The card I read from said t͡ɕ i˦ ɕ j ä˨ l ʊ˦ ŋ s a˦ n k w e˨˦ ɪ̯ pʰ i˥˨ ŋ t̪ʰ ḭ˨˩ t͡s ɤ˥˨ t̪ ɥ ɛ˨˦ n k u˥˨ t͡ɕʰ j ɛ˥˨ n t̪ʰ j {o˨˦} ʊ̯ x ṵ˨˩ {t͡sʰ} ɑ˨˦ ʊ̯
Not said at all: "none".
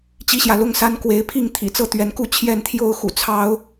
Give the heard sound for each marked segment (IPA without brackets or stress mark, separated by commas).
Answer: o˥˨, t͡sʰ